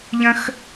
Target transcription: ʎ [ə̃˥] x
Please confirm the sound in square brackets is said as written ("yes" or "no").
yes